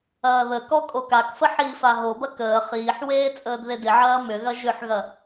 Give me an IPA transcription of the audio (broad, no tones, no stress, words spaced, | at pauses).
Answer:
ɐːðəkɔ kʼokakfə ħiːfaɦobɐ kəː χiːħweː t͡sʼəːdðedɪʕɐː mʏɣɐ ʒʏħɣɐ